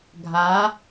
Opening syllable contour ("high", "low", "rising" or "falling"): rising